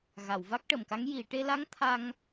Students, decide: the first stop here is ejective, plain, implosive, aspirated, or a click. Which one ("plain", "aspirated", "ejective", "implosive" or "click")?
plain